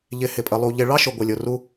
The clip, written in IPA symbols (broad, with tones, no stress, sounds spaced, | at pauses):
ʎ ɪ˨ h ɪ˨ pʼ ə˨ lˠ u˨ ʎ ɪ˨ ɭ ɑ˦ ʃ ʊ˨ ɡʷ ɪ˨ lʲ ʊ˨ r u˦